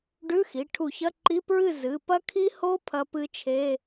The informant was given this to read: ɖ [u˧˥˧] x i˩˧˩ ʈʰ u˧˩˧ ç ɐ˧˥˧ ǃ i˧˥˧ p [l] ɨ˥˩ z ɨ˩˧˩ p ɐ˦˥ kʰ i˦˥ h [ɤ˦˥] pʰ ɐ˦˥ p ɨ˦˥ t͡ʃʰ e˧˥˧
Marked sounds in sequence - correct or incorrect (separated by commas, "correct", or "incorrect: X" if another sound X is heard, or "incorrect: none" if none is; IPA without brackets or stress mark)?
incorrect: ʉ˧˥˧, incorrect: ɹ, incorrect: o˦˥